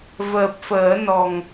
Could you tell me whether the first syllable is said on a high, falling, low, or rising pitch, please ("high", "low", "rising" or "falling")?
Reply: low